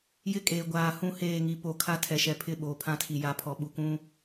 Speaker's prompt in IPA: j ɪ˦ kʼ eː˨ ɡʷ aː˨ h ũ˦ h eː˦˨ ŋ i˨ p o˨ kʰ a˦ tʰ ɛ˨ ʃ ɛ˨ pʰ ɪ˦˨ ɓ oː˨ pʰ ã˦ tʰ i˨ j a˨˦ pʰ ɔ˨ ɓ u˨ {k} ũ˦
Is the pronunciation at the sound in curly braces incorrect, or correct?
correct